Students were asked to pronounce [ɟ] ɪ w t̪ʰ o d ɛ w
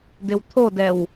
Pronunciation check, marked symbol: incorrect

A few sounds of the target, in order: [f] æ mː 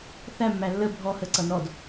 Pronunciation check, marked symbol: incorrect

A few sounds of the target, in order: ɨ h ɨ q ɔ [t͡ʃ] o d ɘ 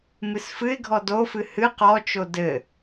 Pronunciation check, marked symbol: correct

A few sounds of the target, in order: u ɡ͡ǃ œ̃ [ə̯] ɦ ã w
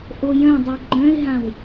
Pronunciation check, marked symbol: incorrect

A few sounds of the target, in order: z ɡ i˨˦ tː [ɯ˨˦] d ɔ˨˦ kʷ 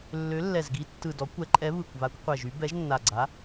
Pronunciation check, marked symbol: incorrect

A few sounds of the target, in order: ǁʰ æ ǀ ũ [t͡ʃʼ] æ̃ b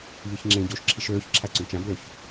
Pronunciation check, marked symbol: incorrect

